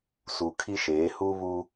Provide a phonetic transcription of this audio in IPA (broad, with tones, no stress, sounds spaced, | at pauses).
s u˨ kʰ i˦ ʃ eː˨˦ h uː˦ β u˦